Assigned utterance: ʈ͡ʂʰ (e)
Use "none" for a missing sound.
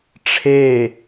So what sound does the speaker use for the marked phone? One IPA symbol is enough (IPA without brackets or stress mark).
e